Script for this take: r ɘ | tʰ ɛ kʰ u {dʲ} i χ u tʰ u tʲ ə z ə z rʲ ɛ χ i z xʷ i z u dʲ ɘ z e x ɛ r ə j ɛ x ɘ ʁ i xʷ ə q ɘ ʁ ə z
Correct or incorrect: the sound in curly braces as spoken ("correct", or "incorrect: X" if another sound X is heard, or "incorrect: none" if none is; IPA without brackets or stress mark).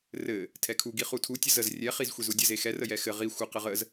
incorrect: ɡ